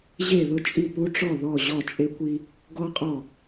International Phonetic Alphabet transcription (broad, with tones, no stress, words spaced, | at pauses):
ʑe˦˨ðʊ˦t͡ʃʼi˦˨ pu˦ʈ͡ʂɔ˦˨ ðɔ˦˨ ʑɔ˦˨t͡ʃʼe˦kʷi˦ | ɡɔ˦qʼɔ˦˨